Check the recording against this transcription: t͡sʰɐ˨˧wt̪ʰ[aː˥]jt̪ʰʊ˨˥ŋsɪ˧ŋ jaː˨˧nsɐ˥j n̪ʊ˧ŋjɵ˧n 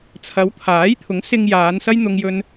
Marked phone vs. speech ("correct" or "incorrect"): incorrect